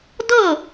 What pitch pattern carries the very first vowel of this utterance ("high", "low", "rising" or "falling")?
falling